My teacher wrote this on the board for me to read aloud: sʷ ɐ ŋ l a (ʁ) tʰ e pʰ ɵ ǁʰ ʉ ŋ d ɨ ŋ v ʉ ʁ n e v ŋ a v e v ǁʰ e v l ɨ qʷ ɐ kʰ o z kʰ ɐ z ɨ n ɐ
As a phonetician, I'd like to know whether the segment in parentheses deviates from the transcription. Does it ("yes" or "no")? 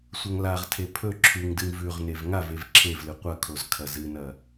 no